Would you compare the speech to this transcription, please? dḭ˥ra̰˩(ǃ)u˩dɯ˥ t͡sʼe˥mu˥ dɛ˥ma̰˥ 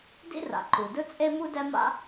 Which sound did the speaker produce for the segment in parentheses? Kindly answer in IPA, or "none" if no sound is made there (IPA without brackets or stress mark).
ǃ